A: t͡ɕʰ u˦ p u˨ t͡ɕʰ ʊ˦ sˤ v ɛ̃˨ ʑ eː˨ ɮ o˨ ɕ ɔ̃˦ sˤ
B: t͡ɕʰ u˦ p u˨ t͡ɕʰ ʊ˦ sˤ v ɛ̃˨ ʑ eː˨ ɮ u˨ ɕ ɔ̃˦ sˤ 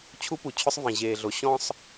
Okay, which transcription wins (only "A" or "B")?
A